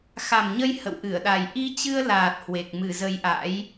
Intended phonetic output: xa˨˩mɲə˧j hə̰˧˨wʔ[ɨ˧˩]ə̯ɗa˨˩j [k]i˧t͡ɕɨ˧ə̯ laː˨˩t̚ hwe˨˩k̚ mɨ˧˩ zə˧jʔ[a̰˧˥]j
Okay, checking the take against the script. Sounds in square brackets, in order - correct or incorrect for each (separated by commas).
correct, incorrect, correct